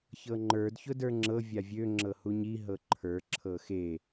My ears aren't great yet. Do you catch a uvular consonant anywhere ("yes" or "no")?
no